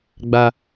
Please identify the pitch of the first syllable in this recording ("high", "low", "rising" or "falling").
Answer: low